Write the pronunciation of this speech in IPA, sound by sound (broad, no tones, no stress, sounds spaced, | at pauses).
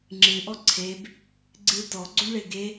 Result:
ŋ͡ǁ ɨ ʔ ɔ ǀʰ e b | ɡ͡ǀ ɨ t ɔ ɡ͡ǀ o ɳ ɭ e ɡ e